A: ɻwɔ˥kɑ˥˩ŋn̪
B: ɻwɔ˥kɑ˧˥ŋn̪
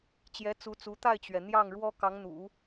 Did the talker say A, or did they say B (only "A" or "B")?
B